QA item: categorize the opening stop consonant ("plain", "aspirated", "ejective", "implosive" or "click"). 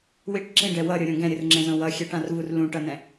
plain